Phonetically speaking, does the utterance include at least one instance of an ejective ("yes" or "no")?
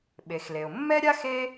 no